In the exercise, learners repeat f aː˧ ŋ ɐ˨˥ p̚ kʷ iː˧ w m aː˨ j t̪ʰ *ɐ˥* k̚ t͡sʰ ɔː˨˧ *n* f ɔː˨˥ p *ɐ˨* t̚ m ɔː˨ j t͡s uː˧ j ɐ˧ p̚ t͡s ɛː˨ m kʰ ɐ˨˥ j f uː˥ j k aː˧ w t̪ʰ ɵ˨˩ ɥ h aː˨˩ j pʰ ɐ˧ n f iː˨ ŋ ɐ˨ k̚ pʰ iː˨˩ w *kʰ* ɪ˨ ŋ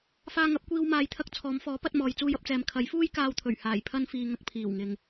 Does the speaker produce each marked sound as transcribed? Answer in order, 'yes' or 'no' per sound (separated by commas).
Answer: no, no, no, no